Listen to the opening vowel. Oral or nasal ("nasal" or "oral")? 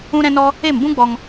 nasal